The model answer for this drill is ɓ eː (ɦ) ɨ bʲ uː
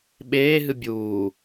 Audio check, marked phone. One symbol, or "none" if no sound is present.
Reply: ɦ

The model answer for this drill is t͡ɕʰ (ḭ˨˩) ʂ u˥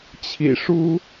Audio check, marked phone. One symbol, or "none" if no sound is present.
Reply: ḭ˨˩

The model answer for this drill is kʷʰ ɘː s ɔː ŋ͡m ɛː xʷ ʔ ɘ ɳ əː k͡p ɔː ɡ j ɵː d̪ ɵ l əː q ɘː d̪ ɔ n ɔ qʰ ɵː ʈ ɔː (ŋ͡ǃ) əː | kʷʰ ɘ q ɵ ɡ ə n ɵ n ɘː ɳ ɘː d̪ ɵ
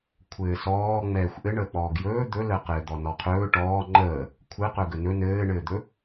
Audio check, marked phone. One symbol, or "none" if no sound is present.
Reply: ŋ͡ǃ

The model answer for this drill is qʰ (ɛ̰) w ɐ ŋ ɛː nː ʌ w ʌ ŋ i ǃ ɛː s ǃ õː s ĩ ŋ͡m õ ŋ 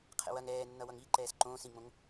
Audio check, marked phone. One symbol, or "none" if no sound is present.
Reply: ɛ̰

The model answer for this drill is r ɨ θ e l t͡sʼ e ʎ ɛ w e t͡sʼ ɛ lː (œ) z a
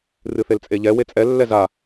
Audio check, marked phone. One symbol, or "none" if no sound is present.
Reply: ɛ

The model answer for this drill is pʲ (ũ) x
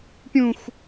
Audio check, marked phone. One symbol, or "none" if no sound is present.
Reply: ũ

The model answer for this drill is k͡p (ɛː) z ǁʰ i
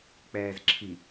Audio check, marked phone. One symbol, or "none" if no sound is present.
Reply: ɛː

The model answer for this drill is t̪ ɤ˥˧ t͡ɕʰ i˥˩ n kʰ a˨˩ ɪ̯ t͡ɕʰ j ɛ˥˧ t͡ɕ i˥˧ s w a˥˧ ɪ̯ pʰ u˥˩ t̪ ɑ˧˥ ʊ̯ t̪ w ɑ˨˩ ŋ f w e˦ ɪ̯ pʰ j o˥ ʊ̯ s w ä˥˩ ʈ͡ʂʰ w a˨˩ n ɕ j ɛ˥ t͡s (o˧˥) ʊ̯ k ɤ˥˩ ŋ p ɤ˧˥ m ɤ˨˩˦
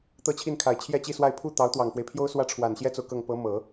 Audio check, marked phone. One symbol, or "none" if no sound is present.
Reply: o˨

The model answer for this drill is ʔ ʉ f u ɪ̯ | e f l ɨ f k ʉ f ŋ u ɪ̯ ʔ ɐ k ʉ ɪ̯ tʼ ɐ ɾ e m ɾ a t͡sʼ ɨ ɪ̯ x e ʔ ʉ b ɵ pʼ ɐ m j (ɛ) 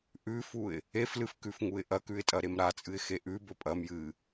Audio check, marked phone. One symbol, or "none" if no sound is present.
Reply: ɨ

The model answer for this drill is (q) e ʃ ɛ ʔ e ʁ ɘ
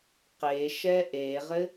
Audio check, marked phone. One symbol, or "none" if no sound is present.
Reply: q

